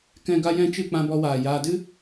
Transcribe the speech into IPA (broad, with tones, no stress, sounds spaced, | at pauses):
k ɛ̃˨ ɡ a˦ j ɛ̃˦ t͡ʃ ɨ˦˨ k͡p ã˧ b ɔ˧ w aː˨ j aː˧ d ɨ˦